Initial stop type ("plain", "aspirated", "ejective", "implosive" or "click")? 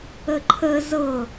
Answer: click